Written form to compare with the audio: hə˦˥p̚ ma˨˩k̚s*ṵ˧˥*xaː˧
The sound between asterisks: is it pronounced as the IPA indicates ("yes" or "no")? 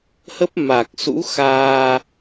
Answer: yes